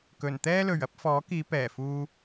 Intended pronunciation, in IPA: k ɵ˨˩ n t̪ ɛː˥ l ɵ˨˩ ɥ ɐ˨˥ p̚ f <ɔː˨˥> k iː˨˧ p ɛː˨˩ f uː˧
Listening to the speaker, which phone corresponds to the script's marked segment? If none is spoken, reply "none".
ɔː˨˥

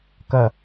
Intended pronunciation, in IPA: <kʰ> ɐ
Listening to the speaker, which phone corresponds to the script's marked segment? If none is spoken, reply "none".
k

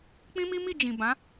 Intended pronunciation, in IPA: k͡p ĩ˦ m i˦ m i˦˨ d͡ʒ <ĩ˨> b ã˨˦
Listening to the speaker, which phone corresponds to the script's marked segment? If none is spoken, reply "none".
ĩ˨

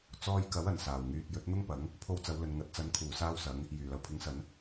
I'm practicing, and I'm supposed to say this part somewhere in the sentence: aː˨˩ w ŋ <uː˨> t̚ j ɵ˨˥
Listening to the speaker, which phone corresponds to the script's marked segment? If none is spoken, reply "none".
yː˨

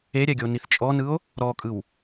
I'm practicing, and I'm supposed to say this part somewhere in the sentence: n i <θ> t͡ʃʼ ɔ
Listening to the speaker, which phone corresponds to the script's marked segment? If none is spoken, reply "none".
θ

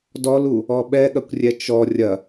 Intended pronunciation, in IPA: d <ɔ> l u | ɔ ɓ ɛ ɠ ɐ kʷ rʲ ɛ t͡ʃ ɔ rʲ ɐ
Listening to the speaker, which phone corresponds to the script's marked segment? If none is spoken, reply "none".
ɔ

